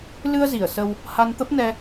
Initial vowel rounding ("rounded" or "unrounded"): unrounded